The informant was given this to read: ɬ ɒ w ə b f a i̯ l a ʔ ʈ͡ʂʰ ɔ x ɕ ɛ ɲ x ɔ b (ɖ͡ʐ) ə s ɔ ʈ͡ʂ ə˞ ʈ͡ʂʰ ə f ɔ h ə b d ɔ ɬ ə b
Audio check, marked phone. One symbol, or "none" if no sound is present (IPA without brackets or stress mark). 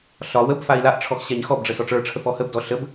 ɖ͡ʐ